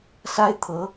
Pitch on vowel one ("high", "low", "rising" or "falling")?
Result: high